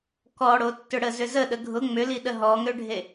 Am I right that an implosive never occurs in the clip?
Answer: no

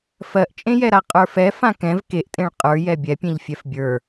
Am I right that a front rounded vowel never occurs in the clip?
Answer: yes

